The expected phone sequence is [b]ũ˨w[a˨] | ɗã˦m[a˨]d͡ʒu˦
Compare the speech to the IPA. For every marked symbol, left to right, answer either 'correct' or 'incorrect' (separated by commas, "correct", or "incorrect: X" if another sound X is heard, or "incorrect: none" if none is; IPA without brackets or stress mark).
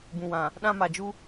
correct, incorrect: ã˨, correct